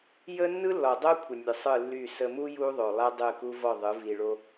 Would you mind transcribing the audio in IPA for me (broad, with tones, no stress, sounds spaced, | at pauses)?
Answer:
j ə˦ nː ɯ˦ lː ɔ˨ dˤ o˦ kʷʰ ə˨ nʲ ɯ˨ sˤ ɯ˦˨ lː y˦˨ s ə˨ m u˦ j u˦ ðˤ o˨ lˠ ɛ˦ dˤ ɯ˦˨ k u˦ v ɔ˦˨ ðˤ ɯ˨˦ v i˨ ɭ o˦